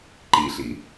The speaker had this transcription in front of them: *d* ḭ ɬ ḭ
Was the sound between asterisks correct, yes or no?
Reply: no